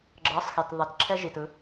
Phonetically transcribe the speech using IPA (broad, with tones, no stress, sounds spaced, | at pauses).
ɡ͡ǁ ɤ˨˦ sˤ x e˨ t ðˤ ɛ˨ t ǁʰ ɛ˦ ʒ i˨ t ɯ˦